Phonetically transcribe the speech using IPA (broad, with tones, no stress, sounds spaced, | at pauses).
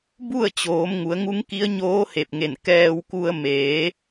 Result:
b u˥˨ ə̯ t͡ɕ oː˩˧ m ŋ u˩˧ ə̯ ŋ u˧˥ ŋ k i˧˥ ə̯ ɲ oː˧˥ h e˧˩ p̚ ŋ e˧˩ n k ɛː˧ w k u˧ ə̯ m eː˩˧